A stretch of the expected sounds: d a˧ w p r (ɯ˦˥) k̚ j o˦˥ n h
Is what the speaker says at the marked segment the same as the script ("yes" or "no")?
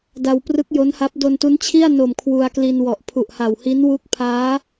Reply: yes